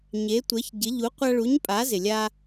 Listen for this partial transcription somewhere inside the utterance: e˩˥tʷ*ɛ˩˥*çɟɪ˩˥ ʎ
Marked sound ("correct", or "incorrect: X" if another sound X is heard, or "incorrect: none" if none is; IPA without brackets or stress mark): correct